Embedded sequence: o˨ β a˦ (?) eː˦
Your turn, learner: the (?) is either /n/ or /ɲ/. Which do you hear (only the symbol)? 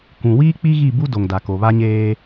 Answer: ɲ